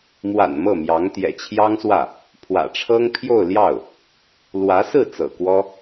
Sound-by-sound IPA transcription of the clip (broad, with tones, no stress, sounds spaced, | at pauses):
m w a̰˨˩ n m ɤ˥˩ m j ɑ˧˥ ŋ t̪ j ɛ̰˨˩ t͡ɕʰ j ɑ˥ ŋ s w ä˥˩ | pʰ w ä̰˨˩ ʈ͡ʂʰ ɤ˥ ŋ pʰ j o˥˧ ʊ̯ l j ɑ˥˩ ʊ̯ | l w ä˧˥ s ɹ̩˥˩ t͡s ɤ̰˨˩ k w ɔ˥